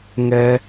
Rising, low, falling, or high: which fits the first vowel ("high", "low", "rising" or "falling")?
high